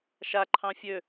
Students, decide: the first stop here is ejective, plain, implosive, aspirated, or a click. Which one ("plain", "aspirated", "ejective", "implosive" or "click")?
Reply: click